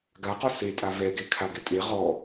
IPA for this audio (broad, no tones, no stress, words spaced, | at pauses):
ɡaqɔ setʼa vɛɡekʰaɡɛ tʼe ʁɔ